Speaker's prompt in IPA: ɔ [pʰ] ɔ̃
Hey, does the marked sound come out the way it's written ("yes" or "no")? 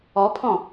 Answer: yes